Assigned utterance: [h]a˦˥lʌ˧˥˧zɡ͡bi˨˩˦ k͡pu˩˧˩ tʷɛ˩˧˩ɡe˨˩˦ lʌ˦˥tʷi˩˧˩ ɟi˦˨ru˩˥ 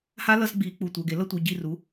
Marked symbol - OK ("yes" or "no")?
yes